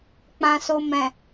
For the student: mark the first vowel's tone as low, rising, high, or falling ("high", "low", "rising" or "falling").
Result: low